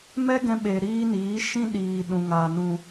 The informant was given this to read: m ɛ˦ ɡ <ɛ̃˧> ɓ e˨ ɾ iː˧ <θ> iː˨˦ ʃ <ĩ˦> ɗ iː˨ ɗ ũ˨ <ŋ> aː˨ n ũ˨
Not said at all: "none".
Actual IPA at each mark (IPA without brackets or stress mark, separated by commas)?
ɛ̃˧, n, ĩ˦, ŋ